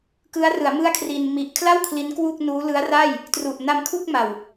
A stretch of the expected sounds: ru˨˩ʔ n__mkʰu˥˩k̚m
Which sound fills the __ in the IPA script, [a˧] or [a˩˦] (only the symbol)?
a˧